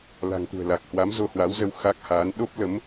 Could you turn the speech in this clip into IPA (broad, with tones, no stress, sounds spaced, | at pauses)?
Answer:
l a̤˨˩ ŋ t̪ ṳ˨˩ ə̯ l a˨˩ k̚ h w a˨˦ m z o˧ h w a˨˦ w z ə˧ w x a˦˥ k̚ h a˨˦ n ɗ o˦˥ p̚ l ə˨˦ m